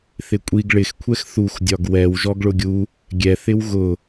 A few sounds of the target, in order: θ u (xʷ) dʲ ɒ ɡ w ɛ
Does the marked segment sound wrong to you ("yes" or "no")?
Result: yes